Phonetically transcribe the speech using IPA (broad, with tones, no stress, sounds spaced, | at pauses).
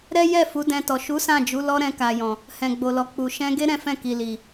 ɾ ɛ˦ j ɛ˦˨ f u˨˦ d ɛ̃˧ t ɔ˨ ʃ u˨˦ s ã˦˨ d͡ʒ u˨˦ l ɔ˦ ɾ ɛ̃˧ k a˨ j ɔ̃˨ | h ɛ̃˨ ɡ͡b o˨ l ɔ˨ k͡p u˨ ʃ ɛ̃˧ ɡ e˦ ɾ ɛ̃˦ f ɛ̃˦˨ k i˨ l i˨